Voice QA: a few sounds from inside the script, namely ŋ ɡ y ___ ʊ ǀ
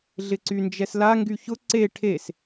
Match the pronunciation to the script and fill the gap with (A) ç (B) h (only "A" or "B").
A